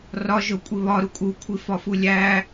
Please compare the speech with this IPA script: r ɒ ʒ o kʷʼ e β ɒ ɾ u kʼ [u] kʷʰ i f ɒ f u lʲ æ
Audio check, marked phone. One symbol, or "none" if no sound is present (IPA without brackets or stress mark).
u